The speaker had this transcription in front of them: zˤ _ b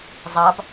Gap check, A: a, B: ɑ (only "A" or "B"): B